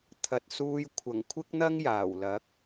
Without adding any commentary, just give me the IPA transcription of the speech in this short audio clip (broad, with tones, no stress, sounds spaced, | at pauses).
t̪ʰ ɐ˨ t̚ s uː˧ j kʷʰ ɐ˨˩ ŋ kʷʰ ɪ˥ k̚ n̪ ɐ˥ ŋ j aː˨˩ w l ɐ˨˥ k̚